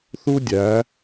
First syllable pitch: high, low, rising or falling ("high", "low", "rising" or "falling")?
high